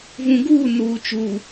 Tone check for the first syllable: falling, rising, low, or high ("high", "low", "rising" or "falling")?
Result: low